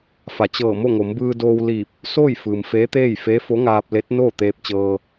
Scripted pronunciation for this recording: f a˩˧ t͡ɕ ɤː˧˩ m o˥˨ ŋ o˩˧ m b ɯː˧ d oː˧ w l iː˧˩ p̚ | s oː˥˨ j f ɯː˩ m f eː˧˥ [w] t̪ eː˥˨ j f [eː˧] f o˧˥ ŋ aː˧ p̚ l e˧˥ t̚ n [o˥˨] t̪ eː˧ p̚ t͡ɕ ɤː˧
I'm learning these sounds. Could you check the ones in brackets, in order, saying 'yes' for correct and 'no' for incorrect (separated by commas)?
no, no, no